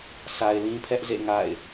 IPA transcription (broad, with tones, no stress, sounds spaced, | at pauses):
sʰ a˨ ɪ̯ l ĩ˦ pʰ ɛ˦ ʔ z ḛ˦˨ ŋ a̰˦˨ ɪ̯